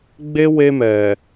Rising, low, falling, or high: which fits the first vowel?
high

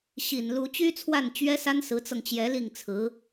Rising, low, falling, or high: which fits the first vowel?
low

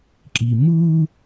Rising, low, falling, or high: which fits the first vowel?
low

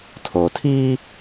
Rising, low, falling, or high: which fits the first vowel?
low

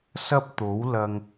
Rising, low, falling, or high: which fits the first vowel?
high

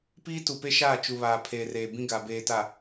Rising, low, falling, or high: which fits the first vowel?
high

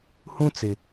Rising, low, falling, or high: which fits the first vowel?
high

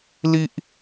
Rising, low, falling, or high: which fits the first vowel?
high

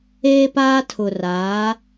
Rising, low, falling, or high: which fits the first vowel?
high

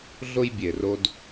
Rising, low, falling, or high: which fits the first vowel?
high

